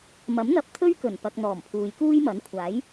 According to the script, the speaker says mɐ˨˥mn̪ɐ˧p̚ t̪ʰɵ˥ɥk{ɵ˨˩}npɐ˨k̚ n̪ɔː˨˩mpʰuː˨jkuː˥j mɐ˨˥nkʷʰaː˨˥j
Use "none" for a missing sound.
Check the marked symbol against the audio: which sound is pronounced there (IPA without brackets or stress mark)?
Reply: ɵ˨˩